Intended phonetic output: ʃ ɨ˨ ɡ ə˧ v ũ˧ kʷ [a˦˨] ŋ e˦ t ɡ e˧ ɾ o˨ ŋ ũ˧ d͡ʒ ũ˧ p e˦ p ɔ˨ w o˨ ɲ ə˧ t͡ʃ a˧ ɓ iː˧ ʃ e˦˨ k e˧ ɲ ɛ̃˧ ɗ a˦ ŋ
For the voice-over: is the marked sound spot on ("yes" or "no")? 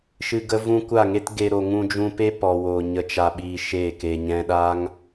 yes